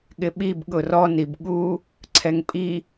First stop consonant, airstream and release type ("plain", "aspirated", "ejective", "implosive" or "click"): implosive